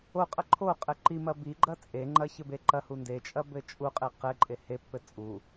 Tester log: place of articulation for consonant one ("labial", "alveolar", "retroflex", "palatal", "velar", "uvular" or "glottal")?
uvular